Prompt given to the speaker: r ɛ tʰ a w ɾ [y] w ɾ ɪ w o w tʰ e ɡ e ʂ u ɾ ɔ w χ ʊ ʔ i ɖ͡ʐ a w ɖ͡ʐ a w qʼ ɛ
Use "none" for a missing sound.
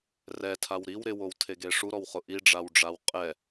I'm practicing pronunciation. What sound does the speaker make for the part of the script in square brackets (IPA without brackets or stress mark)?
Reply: i